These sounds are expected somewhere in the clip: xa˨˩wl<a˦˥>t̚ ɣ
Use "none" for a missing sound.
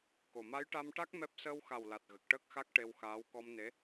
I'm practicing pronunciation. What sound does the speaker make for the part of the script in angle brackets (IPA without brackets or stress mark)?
a˨˩